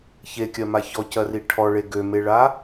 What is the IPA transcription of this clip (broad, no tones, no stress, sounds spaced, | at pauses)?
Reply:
ç e kʲ ɜ m a ç ɔ c ɜ r i ʈʰ ɔ ɭ e ɡ ø m e ɭ a